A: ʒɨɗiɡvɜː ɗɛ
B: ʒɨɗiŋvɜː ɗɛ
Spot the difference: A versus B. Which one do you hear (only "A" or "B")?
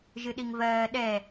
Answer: B